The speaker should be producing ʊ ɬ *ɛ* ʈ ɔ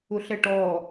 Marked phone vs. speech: correct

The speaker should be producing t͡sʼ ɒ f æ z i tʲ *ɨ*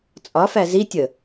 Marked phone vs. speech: incorrect: ə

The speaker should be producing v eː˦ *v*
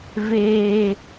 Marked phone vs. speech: incorrect: none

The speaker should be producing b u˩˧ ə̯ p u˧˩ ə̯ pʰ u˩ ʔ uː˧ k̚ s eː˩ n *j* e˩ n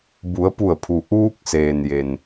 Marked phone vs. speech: correct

